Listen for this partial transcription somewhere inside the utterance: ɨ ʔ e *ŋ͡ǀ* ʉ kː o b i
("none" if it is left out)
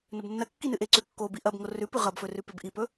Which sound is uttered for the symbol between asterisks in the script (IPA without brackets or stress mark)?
ǀ